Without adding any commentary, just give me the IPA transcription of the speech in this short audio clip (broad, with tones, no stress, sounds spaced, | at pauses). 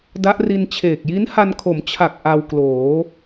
d a˦˥ ʔ r i˧ n t͡ɕʰ eː˨˩ k̚ j i˦˥ n h a˧ n kʰ o˩˦ m t͡ɕʰ a˨˩ k̚ ʔ a˧ w k l oː˩˦